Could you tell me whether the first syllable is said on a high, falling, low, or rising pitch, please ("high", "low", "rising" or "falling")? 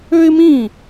high